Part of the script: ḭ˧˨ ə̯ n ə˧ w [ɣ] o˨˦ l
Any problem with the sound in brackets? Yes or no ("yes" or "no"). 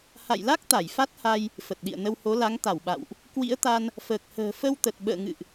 yes